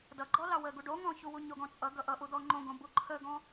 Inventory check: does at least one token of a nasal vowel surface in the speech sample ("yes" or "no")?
yes